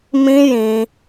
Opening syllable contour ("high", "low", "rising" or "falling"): high